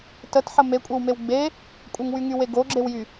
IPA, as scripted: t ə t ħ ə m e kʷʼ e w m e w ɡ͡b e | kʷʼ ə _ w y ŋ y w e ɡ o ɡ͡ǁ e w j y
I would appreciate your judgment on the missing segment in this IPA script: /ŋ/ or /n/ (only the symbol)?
ŋ